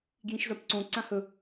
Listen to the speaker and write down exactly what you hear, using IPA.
ɡ j ĩ ʃ z ɐ p ǀ õ ǀ ã h ɵ

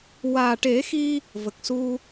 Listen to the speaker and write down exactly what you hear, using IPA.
w aː˨˩ ʈ e˨˩˦ x i˧ | v ə˨˩ k̚ s u˧

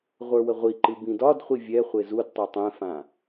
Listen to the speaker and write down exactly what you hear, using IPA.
ʁʷ ə˞ w ə ʁʷ i ǃ ɨ b ĩ d ɒ d χʷ i vʲ ɛ χʷ e z u d tˤ e tˤ ɛ̃ f ã

